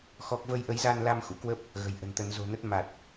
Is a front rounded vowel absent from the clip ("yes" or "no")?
yes